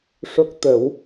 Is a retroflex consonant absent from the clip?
no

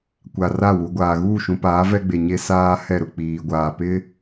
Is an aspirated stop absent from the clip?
yes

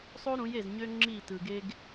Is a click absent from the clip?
no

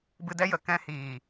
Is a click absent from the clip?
yes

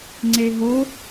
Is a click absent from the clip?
no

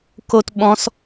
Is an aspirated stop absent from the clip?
yes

